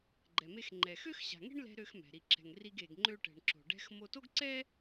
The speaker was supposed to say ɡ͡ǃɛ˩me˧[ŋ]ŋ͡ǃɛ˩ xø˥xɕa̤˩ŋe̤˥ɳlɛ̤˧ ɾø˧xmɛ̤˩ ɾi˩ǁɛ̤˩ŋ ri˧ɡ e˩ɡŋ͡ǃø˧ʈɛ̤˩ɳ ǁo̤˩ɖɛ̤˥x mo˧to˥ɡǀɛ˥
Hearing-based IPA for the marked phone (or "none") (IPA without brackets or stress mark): x